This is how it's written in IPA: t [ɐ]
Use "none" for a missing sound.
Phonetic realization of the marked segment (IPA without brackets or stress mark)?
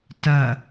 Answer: ɐ